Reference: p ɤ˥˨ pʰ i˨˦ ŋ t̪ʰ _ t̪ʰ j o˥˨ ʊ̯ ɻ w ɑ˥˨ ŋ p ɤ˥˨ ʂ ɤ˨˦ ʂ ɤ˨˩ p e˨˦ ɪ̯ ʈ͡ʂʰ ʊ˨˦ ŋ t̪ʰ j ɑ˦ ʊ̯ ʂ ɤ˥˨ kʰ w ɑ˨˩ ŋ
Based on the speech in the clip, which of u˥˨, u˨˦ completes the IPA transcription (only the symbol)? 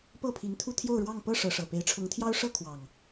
u˥˨